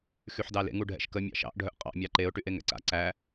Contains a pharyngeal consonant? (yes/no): yes